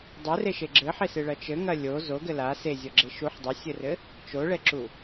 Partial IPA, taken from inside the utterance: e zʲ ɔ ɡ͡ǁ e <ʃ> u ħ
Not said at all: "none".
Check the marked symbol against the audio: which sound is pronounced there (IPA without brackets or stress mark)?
ʃ